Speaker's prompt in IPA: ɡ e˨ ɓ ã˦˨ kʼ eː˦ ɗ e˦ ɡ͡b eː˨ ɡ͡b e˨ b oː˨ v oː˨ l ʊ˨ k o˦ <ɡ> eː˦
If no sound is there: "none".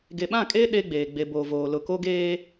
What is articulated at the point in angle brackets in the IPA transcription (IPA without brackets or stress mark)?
ɡ